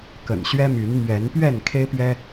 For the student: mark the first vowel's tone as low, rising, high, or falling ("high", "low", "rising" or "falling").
low